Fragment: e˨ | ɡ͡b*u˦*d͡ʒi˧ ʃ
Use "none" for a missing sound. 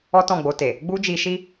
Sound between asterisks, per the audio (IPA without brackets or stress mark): u˦